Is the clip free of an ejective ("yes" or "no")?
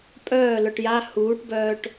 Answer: no